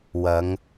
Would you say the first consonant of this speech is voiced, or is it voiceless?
voiced